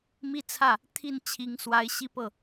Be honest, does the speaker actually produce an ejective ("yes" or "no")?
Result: no